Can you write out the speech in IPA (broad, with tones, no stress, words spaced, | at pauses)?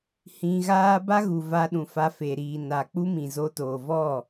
hĩ˧ɣaː˦ ba˦ ɣu˨va˧ ɗũ˨fa˧fe˨ ɾiː˨na˨ k͡pu˦mĩ˨zo˧toː˨ vɔ˦˨